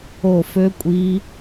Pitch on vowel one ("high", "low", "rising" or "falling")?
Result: falling